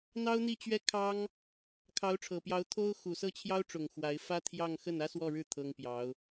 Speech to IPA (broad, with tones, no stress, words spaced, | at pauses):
n̪ɑ˥ʊ̯n̪i˥˧t͡ɕɥɛ˥˩kʰɑ˥ŋ | kʰɑ˧˥ʊ̯ʈ͡ʂʰɤ˨˩pjɑ˧˥ʊ̯ t̪ʰo˥ʊ̯ xu˨˩sɤ˥˩t͡ɕʰjɑ˥ʊ̯ʈ͡ʂʊ˨˩ŋ xwa˧˥ɪ̯ fä˥t̪ʰjɑ˥˧ŋ xə˥˩nä˥swɔ˥˧ɻɻ̩˥˩ t̪ʰɤ˥ŋpjɑ˧˥ʊ̯